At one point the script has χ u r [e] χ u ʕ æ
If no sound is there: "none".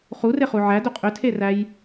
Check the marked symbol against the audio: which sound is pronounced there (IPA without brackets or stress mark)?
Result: e